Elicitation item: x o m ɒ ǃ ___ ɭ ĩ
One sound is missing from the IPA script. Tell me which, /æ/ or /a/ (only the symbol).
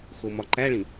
æ